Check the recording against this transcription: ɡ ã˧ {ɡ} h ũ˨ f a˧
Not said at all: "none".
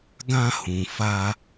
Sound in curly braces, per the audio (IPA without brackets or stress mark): none